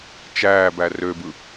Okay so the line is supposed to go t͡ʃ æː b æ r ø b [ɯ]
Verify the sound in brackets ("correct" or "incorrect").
correct